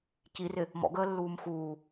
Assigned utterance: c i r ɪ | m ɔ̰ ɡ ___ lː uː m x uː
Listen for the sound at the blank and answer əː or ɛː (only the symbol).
əː